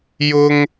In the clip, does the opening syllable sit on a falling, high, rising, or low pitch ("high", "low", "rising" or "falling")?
high